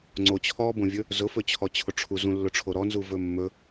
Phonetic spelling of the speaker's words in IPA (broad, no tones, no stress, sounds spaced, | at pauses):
ŋ͡ǀ o t͡ɕʰ ɔ b õ vʲ ɵ | z ʊ f ɵ t͡ɕʰ ɔ t͡ɕʰ ʊ ʈ͡ʂʰ u z ũ lː ʊ ʈ͡ʂʰ o ɾ ɔ n z u v ɵ mː ɵ